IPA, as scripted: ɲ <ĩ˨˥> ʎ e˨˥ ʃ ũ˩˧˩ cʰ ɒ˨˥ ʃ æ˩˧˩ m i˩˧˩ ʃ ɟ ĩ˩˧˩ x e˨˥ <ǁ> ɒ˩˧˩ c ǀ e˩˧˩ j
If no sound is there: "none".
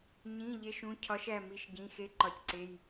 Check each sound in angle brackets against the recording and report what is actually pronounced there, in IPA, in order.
ĩ˩˧˩, ǃ

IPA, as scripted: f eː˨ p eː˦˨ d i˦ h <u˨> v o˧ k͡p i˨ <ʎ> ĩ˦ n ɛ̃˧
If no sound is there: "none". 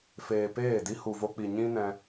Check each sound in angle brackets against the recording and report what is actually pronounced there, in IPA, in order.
u˨, ɲ

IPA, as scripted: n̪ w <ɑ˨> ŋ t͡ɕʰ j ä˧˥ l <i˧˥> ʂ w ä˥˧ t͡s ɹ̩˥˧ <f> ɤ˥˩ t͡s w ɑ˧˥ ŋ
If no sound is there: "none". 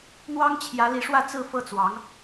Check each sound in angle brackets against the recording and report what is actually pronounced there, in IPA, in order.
ɑ˥, i˧˥, f

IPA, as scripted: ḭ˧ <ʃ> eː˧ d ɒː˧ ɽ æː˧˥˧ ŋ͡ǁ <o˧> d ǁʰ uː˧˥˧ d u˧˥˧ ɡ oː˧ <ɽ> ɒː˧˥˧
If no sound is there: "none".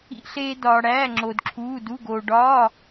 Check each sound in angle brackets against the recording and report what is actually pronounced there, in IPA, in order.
ɬ, o˧, ɖ

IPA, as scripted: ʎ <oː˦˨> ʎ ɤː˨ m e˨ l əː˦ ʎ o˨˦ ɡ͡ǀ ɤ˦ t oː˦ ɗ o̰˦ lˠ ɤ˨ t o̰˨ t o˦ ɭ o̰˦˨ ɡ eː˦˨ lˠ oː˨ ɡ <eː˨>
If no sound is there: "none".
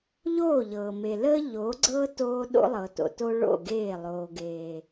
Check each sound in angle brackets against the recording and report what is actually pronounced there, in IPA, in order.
oː˦˨, eː˨

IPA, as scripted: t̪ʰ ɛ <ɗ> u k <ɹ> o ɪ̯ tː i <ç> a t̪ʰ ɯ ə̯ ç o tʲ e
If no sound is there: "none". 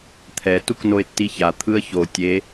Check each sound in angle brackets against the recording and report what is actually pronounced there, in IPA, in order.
t, n, ç

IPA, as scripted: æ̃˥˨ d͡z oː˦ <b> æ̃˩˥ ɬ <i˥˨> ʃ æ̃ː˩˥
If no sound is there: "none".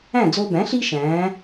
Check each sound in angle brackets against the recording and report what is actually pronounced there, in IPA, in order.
b, i˦

